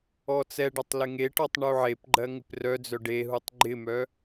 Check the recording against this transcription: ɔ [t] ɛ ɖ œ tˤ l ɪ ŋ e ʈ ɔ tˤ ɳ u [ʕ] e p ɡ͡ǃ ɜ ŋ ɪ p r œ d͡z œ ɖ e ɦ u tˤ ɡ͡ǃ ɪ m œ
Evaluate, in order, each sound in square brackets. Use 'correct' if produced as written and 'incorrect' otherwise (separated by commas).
incorrect, correct